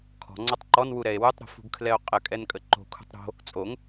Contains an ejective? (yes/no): yes